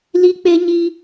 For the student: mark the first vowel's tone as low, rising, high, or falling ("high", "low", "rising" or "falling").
high